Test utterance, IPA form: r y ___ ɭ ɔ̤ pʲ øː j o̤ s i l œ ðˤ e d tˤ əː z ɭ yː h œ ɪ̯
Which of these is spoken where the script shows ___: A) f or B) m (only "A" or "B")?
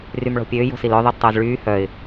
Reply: B